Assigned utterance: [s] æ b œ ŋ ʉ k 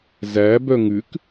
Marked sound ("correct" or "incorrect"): incorrect